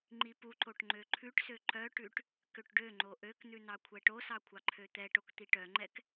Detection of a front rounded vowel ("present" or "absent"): present